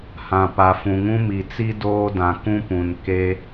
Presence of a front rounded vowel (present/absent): absent